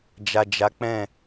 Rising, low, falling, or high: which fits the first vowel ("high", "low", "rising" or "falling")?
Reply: low